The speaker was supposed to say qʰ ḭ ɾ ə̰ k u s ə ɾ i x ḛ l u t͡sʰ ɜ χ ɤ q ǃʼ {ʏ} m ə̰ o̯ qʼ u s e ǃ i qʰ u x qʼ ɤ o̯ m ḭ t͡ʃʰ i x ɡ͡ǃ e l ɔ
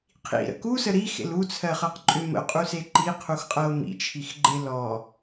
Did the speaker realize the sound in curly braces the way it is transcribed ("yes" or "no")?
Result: yes